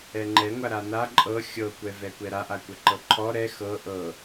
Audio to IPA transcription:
ɛ ŋ͡ǃ ɛ ŋʷ a ɾ a n a ǃʼ ɤ xʲ ɤ kʷ ɛ v ɛ kʷ ɛ ɾ a ʔ a kʷ ɛ ǃ ɤ ǃʰ ɔ ɾ ɛ x ɤ ʔ ɤ

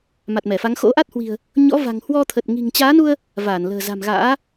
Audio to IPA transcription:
m a˨˩ t̚ m ɛ˧˩ f a˨˦ ŋ x o̰˧˥ ʔ a˦˥ t̚ h w i̤˨˩ ə̯ | ɲ ɔ̰˧˥ v a̤˨˩ ŋ h w ɔ˧ t̪ʰ ə˨˩ t̚ ŋ i̤˨˩ ŋ t͡ɕ aː˨˦ n u˧ ə̯ | v aː˧˩ n l ə̤ː˨˩ z a̤˨˩ m ɣ a̰ː˧˥

